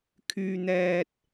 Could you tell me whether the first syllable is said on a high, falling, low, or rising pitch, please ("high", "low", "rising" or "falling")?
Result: low